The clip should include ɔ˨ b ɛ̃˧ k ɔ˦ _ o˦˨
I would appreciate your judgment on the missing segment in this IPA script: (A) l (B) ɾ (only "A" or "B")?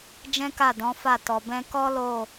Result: A